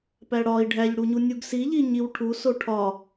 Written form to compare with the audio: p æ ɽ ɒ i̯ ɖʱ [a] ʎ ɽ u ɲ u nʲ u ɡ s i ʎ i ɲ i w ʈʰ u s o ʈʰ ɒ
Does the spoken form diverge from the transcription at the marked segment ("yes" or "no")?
yes